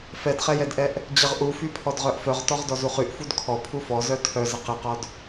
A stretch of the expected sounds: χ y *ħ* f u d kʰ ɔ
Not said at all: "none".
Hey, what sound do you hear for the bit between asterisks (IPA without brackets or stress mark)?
ʔ